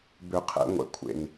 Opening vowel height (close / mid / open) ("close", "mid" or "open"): close